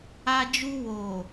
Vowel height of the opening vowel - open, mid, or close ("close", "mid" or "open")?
open